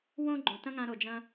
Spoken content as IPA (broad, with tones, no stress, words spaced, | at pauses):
wõ˦ɡ͡ǃõ˨tɐ̃˦ŋã˧ ɾo˨d͡ʒɐ̃˧